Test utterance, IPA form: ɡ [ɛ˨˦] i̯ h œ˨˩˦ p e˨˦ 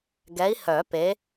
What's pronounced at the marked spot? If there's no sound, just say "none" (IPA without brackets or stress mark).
ɛ˨˦